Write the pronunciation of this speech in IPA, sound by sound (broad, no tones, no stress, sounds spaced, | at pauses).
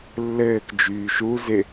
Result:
lː ɘː k d͡ʒ yː ʃ u z ɪ